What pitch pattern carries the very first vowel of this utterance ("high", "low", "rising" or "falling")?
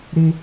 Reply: high